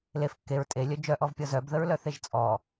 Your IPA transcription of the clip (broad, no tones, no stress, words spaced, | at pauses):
lef kːeɹ tʼelʲœ d͡ʒœʔɔvpʲɔ zœbðəɹlœθeʒ t͡sʼɔ